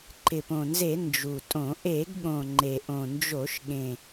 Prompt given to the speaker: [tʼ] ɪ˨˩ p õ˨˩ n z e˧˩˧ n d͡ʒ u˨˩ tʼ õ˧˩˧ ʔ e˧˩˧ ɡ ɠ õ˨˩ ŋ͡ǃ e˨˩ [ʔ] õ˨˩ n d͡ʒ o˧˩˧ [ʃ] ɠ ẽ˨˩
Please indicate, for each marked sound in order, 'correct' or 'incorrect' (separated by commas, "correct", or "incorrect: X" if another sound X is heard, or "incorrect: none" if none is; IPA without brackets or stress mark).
incorrect: ǃ, correct, correct